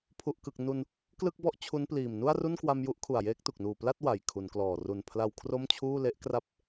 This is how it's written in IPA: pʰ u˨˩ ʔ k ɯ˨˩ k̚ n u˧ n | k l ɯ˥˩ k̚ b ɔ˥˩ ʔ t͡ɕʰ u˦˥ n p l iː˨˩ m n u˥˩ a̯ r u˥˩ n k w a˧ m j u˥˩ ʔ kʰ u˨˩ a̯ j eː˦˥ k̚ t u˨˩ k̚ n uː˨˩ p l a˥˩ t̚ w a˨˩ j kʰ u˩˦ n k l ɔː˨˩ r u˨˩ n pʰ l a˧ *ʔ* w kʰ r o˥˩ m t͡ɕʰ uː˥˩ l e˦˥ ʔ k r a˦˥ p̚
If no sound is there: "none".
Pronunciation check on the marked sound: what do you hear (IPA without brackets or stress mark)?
none